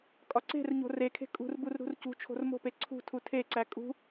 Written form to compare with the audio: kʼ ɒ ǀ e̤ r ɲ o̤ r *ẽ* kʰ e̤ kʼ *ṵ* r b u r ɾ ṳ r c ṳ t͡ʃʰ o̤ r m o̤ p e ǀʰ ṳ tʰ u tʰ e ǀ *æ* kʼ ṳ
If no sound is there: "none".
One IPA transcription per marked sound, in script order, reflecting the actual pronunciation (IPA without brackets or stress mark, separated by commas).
e, ṳ, æ